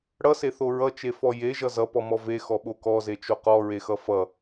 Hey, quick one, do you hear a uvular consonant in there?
yes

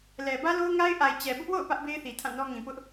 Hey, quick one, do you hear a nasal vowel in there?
yes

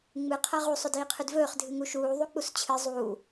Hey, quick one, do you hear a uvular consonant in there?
yes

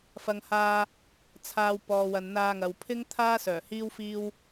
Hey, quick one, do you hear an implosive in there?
no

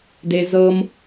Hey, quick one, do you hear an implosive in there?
no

